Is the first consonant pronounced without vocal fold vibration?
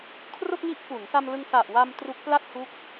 yes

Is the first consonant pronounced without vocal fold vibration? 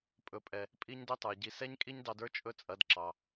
yes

